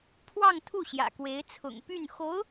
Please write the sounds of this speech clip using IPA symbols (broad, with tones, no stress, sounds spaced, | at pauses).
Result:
pʰ w ɑ˥˧ ŋ t̪ʰ u˥˩ ɕ j ä̰˨˩ k w e˧˥ ɪ̯ t͡sʰ ʊ̰˨˩ ŋ p y˥˩ n x o˧˥ ʊ̯